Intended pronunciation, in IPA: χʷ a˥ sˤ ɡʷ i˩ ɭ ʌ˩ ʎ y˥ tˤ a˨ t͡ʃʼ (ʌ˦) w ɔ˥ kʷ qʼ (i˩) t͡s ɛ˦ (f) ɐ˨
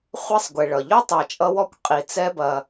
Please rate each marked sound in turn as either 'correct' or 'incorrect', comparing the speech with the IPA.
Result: correct, correct, incorrect

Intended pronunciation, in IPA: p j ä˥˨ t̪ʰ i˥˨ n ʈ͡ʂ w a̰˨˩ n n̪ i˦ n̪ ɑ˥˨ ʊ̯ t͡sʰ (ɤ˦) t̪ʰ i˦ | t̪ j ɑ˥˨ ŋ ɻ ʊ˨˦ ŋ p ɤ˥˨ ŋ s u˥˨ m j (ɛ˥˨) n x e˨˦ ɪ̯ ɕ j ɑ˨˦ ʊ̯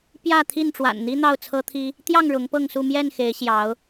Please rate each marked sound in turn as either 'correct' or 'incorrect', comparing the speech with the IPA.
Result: correct, correct

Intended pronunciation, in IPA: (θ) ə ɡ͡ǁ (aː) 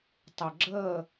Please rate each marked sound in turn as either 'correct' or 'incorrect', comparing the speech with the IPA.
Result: incorrect, incorrect

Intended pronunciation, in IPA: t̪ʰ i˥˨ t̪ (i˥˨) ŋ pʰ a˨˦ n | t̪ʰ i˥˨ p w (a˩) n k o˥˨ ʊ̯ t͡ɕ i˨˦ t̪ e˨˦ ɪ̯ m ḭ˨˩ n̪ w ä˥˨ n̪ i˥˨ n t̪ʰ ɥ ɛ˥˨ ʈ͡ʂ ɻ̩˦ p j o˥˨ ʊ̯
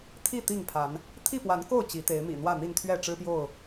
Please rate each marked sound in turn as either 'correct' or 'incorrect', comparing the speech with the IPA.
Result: correct, incorrect

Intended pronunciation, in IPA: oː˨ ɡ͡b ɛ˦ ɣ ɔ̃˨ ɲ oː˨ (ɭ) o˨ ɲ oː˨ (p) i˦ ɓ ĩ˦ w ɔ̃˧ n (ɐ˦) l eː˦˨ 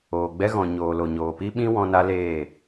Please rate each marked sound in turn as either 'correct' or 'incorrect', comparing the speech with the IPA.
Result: incorrect, correct, incorrect

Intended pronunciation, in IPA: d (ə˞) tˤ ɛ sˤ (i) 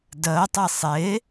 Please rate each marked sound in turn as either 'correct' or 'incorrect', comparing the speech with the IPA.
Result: incorrect, incorrect

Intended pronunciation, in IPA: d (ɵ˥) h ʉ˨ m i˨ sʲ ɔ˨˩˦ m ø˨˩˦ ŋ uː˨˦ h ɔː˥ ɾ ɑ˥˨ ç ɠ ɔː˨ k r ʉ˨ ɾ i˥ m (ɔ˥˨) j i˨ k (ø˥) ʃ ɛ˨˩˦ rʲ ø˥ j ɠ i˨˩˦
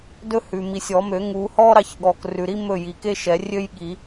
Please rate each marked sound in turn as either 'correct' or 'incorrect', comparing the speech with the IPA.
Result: correct, incorrect, incorrect

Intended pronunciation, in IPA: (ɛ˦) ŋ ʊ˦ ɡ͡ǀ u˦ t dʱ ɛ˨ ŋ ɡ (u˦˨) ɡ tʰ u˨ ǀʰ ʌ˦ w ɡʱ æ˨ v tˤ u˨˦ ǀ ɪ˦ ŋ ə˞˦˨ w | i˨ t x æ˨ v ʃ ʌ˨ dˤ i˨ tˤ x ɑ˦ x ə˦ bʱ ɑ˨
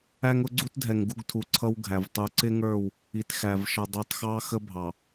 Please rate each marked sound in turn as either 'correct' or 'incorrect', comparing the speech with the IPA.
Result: incorrect, correct

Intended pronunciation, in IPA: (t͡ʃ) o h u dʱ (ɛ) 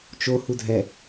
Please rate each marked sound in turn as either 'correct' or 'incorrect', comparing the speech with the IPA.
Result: correct, correct

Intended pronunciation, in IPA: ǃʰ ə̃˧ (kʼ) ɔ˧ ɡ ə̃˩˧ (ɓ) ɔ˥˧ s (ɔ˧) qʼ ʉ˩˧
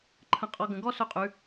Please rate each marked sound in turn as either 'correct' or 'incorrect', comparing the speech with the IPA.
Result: incorrect, incorrect, incorrect

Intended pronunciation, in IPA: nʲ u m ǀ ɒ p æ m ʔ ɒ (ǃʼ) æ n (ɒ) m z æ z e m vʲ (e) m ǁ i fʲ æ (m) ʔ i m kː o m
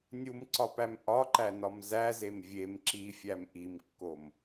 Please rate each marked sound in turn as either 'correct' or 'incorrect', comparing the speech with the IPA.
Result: incorrect, correct, correct, correct

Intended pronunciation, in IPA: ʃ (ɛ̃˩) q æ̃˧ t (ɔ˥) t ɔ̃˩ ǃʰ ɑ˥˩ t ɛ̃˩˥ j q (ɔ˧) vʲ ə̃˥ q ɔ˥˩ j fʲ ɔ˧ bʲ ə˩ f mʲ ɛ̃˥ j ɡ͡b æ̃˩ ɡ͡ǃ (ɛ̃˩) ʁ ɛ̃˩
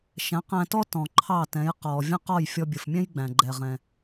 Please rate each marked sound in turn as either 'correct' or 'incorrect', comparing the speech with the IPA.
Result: incorrect, correct, incorrect, incorrect

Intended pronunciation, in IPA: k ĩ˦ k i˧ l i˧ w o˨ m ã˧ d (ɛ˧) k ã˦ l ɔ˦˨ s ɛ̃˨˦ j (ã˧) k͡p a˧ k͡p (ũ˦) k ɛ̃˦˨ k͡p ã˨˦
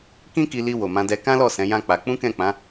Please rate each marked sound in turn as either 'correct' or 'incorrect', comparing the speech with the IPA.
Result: correct, incorrect, correct

